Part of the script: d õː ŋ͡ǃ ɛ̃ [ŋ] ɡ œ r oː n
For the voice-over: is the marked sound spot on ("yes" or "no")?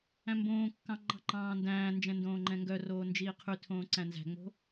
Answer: yes